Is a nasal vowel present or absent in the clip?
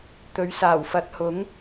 absent